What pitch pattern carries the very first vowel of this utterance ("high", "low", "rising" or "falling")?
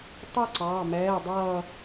falling